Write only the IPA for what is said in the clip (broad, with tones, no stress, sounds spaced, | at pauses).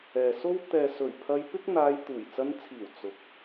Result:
ɛː˨ s o˥ w t̪ ɛː˨ s ɵ˨˩ ɥ pʰ ɐ˧ j p ɪ˥ k̚ n̪ aː˧ j t̪ uː˨˩ j t͡s ɐ˧ n t͡sʰ iː˨˩ w t͡s ʊ˨˥ k̚